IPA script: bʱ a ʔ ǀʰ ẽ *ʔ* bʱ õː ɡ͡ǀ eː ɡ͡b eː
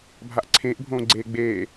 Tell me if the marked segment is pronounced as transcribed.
yes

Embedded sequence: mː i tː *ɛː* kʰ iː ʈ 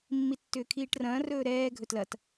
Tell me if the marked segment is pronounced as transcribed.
no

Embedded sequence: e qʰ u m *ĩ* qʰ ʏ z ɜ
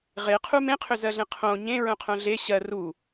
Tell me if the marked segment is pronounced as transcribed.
no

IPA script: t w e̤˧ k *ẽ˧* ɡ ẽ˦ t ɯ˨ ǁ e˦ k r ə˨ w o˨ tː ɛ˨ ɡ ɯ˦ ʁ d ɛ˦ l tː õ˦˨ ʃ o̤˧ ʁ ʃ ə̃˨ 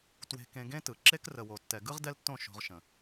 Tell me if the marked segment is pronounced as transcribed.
yes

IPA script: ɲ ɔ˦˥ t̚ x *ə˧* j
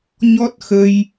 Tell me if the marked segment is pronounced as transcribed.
yes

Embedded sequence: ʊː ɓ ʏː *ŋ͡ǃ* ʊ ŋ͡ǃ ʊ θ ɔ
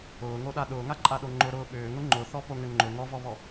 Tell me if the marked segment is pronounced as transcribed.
no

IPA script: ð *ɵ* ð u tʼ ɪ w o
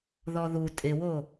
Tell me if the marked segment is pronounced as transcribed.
no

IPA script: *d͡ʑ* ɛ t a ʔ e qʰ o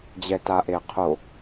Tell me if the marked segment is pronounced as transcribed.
yes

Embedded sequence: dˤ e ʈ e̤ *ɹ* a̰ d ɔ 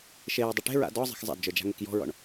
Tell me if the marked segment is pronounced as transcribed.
yes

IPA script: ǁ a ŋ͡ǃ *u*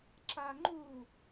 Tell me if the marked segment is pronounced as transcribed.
yes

